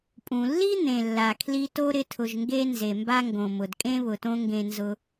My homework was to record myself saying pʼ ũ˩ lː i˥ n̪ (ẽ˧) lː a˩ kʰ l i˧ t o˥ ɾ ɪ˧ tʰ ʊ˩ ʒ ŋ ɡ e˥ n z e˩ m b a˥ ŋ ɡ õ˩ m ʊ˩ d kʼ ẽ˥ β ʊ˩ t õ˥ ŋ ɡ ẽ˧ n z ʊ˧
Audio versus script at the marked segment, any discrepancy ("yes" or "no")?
yes